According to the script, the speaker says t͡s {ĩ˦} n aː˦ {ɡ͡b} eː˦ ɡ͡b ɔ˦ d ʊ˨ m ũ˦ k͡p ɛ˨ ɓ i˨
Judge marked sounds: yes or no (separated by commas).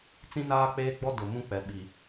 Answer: yes, no